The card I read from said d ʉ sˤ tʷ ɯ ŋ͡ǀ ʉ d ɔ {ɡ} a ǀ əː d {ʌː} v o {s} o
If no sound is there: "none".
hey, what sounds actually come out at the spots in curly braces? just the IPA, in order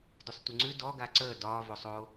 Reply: ɡ, ɒː, sˤ

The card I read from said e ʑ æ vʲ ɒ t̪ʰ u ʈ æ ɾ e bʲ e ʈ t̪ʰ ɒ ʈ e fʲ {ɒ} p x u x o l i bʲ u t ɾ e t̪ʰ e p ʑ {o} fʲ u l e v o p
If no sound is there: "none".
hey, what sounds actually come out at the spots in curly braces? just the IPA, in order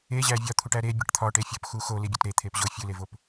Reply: ɒ, o

